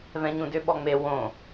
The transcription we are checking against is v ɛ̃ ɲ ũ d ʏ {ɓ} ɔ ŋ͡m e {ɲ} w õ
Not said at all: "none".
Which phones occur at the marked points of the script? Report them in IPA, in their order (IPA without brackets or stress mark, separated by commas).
ɓ, none